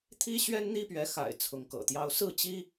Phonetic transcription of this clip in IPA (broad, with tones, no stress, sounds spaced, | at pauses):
t̪ʰ i˥ ɕ ɥ ɛ˥ n n̪ i˥ p ɥ ɛ˧˥ x a̰˨˩ ɪ̯ t͡sʰ ʊ˧˥ ŋ k ɤ̰˨˩ t̪ j ɑ˥ ʊ̯ s ɹ̩˥˩ t͡ɕ i˥